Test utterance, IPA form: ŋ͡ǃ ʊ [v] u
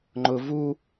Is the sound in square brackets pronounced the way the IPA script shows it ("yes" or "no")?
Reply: yes